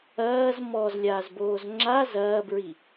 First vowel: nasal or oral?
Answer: oral